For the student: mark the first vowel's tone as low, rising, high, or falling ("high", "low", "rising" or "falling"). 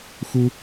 high